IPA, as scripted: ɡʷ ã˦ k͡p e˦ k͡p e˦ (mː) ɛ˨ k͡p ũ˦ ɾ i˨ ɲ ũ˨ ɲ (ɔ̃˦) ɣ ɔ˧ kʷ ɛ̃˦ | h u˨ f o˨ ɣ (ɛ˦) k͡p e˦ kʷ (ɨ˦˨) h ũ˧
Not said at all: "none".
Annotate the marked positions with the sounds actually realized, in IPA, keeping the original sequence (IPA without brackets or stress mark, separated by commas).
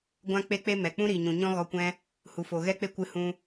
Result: m, ɔ̃˦, ɛ˦, ɨ˧